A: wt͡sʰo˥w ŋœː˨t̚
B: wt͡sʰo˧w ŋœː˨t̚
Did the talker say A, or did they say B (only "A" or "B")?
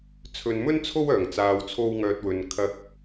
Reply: B